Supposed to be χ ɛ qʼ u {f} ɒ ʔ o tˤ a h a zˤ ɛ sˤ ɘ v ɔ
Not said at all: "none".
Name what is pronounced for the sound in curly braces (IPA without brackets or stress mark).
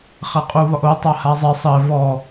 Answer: β